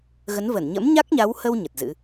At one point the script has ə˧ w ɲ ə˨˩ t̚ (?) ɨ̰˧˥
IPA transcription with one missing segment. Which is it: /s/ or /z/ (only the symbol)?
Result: z